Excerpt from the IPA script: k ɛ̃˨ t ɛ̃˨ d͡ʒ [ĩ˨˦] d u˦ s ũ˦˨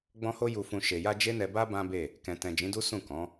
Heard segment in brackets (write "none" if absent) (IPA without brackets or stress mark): ĩ˨˦